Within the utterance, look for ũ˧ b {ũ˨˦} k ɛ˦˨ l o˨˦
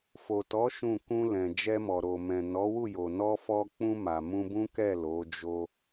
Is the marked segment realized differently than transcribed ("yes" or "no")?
yes